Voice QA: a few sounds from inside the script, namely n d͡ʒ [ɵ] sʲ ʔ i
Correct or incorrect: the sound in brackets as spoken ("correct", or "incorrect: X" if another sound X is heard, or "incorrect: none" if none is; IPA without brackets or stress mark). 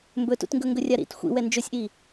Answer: correct